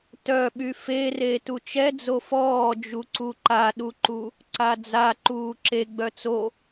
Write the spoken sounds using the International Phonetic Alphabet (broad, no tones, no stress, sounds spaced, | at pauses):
t œ ɓ y f e r e t u t͡ʃ ɛ d͡z o f ɔː d͡ʒ u ǀ u ǃ a ɗ u ǃ u | ǀ a d͡z a ǃ uː ǁ e ɡ͡b œ t͡s o